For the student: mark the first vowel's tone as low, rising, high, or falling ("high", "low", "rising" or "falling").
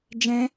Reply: high